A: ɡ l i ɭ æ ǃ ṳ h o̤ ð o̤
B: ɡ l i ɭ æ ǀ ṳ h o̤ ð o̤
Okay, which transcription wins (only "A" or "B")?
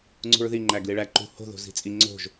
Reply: A